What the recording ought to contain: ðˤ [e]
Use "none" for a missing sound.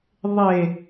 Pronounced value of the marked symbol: e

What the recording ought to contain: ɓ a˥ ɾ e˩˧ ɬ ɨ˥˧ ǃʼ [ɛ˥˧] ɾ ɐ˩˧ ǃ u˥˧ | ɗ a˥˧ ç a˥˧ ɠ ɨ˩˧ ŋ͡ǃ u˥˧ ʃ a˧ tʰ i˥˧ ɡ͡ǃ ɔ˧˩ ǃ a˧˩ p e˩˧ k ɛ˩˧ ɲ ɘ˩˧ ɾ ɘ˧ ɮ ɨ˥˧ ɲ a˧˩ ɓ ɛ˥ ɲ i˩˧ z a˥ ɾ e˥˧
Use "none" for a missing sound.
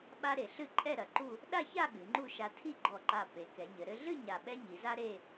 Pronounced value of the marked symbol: ɛ˥˧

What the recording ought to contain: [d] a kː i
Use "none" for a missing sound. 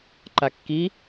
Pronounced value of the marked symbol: ǃ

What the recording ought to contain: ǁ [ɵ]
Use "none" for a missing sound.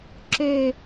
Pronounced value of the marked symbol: ø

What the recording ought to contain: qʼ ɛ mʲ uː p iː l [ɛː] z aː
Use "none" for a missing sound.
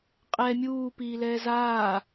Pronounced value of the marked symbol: ɛː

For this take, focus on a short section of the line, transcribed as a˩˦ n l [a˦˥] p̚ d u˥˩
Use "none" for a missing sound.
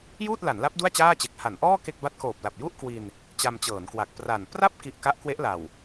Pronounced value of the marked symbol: a˦˥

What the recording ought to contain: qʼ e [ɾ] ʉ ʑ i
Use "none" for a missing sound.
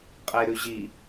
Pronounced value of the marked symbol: ɾ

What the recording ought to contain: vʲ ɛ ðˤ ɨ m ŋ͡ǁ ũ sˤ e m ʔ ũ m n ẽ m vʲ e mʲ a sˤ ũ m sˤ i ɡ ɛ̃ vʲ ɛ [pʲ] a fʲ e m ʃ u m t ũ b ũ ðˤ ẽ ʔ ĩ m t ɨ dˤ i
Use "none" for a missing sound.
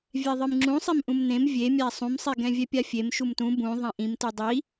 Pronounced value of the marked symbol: pʲ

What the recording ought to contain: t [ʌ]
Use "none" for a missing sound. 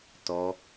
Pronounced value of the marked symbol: ɔ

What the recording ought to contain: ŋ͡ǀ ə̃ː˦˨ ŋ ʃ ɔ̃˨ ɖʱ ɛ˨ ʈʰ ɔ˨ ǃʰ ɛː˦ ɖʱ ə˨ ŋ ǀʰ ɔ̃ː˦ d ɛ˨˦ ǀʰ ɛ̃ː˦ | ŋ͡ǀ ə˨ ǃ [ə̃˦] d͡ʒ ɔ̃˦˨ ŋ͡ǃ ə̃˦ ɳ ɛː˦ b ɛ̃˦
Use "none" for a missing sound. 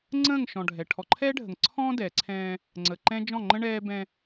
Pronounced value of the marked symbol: ɛ̃˦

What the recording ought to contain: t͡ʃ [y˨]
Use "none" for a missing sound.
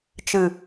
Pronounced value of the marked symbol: ɨ˨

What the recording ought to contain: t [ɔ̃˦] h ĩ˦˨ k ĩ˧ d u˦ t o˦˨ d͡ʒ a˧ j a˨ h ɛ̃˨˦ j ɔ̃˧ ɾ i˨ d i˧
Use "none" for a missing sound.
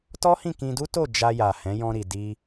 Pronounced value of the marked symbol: ɔ˦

